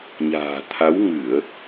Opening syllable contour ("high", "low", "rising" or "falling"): low